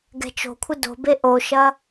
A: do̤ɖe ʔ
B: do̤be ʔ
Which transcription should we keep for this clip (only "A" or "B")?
B